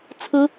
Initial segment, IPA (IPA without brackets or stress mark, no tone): t͡sʰ